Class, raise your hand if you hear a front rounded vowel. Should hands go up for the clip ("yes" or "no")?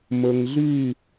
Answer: yes